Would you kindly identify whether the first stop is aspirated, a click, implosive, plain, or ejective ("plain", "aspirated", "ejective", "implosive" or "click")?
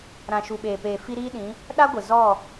implosive